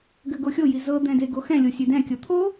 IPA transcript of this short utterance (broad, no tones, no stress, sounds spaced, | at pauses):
ɡ ø ɡ o xʲ o j i z ɤ d̪ ɛ̃ d e ɡ o x ɛ̃ lʲ o sʲ ø d ɛ̃ kʲ ɤ t̪ʰ o